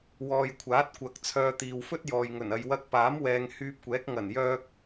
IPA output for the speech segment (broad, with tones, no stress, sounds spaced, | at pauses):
w ɔː˨ j kʷʰ aː˨˥ t̚ kʷ ɐ˨ k̚ t͡sʰ œː˧ t̪ iː˨ w f ɵ˥ t̚ j ɔː˨ j ŋ ɵ˨˩ n ɐ˨ j w ɐ˧ k̚ p aː˨˥ m w ɛː˨ ŋ h yː˧ p̚ kʷ ɛː˨˥ k̚ ŋ ɐ˨˩ n j œː˧ k̚